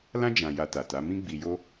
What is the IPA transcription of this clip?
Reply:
l ã˦ d͡ʒ ã˧ j a˧ t a˨ t a˨˦ m ĩ˦ ɡ͡b i˧ j o˦

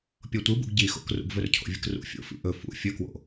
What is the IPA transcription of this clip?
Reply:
pʲ o tʷ ɨ b ṵ ɡ ɟ i x o̰ k r ṵ ɡ v ɵ r cʰ o̰ vʲ ɨ k r ṵ fʲ o̰ f ḭ ʔ ɵ f ṵ fʲ ɵ k w o̰

